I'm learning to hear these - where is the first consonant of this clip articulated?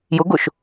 palate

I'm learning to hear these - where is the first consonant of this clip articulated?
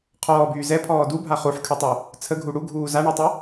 uvula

